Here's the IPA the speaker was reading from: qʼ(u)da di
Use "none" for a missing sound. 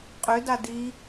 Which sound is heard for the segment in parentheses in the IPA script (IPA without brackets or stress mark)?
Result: ʏ